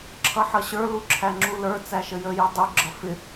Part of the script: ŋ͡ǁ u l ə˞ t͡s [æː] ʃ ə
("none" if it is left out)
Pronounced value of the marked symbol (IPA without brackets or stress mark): æ